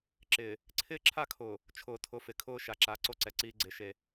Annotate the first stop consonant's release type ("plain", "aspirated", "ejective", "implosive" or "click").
click